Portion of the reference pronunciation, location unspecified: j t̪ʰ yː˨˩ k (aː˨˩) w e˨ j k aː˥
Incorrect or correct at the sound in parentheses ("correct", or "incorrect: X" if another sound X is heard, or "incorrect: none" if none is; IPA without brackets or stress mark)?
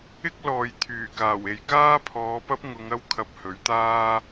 correct